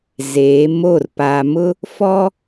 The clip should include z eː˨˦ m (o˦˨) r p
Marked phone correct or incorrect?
correct